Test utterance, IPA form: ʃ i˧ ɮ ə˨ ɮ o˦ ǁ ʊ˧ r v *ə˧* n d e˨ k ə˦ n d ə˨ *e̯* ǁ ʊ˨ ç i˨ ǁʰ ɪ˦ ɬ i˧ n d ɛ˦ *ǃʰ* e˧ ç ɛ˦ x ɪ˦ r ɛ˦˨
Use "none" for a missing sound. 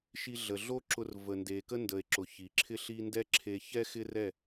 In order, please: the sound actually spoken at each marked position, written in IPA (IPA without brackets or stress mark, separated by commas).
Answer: ə˨, e̯, ǁʰ